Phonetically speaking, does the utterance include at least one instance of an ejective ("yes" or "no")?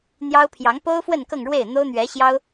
no